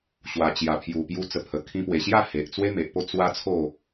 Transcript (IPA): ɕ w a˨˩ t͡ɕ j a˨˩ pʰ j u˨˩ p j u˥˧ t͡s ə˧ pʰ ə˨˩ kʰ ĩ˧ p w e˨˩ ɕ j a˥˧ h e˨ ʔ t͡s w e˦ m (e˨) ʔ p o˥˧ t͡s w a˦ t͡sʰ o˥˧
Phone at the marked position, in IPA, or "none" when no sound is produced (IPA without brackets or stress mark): e˨